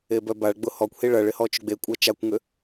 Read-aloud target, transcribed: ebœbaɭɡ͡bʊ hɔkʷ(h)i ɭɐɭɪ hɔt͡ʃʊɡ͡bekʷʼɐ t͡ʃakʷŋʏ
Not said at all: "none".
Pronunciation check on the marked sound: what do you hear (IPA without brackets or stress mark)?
h